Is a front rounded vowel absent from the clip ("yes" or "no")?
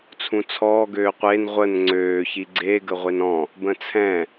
no